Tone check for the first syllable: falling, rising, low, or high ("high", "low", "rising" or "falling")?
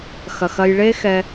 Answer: low